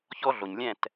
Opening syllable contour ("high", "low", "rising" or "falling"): high